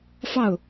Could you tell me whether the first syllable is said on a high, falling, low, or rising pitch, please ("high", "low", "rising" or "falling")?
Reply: falling